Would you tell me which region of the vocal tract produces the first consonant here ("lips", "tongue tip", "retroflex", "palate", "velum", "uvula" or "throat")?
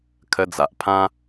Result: velum